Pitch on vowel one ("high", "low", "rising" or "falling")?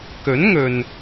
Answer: rising